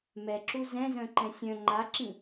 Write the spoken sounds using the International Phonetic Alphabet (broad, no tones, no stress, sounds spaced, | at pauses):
m ɛ ǁ u z ɛ̃ z œ̃ ǃ ɛ̃ sʲ œ̃ ŋ͡ǃ a ǁ ĩ